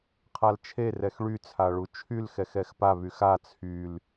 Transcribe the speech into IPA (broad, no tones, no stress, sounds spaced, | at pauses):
qʰ a l t͡ʃʰ e r ɛ x ɭ y t͡sʰ a ɭ u t͡ʃʰ y l x ɛ x ɛ x p a β y x a t͡sʰ y l